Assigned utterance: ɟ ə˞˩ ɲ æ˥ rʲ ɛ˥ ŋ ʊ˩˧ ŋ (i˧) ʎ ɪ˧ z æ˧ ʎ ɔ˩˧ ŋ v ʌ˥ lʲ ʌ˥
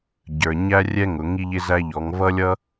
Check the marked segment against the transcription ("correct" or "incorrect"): correct